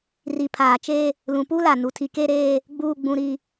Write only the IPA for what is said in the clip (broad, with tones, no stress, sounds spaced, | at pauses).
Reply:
r i˨ pʰ aː˨ t͡ʃ eː˦ | l ũ˨ p u˦ l a˨ n u˨ tʰ i˨ k e˦ ɾ eː˦ | ɡ͡b uː˨ ɡ͡b ũ˨ ɾ i˨